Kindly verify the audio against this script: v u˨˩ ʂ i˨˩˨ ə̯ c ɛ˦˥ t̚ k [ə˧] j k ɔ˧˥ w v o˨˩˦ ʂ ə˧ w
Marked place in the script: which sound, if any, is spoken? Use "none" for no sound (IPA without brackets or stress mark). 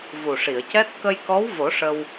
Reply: ə˧